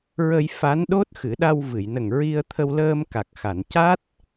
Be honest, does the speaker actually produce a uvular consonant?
no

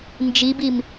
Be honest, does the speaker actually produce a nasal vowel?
no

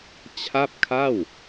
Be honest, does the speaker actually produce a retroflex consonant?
no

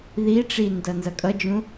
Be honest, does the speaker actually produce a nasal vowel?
yes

